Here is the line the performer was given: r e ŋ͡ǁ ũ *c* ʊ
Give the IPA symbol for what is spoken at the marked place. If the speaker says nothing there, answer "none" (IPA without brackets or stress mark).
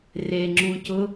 c